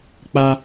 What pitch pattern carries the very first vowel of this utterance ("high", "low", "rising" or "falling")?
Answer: high